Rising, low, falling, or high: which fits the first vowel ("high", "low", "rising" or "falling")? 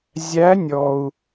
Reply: rising